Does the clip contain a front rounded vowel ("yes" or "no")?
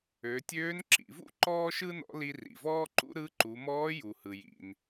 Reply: yes